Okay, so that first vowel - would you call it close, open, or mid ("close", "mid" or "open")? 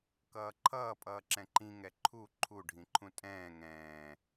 mid